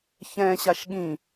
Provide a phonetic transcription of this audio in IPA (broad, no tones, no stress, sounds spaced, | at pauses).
ç ɛ̃ ɕ a ʃ ɠ ĩ